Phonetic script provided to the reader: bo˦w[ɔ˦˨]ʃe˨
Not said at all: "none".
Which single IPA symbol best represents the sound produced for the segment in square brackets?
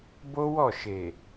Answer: ɔ˦˨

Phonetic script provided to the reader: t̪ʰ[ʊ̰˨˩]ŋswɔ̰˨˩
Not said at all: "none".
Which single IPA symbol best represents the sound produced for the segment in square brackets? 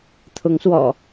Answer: ʊ˨˦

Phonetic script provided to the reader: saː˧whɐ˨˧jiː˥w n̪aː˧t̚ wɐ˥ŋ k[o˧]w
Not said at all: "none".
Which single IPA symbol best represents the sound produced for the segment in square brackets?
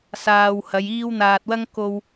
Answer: o˧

